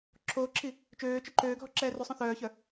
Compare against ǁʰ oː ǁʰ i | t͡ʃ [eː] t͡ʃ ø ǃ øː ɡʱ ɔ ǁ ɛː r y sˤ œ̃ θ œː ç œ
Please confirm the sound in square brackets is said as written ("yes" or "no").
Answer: no